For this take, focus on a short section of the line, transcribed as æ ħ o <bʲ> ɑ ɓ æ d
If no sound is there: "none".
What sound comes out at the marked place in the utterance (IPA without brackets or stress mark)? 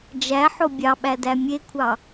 bʲ